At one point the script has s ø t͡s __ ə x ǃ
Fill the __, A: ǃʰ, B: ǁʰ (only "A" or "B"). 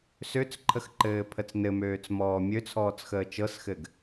A